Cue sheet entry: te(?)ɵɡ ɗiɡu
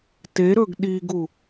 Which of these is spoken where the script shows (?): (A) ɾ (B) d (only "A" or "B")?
A